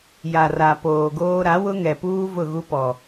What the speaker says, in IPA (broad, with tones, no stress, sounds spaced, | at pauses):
j a˨ r a˨ p oː˨ ɡ oː˦ ɾ a˨˦ w ʊ˦ ŋ ɛ˨ p uː˦ v ʊ˦˨ ɣ u˦ p ɔ˨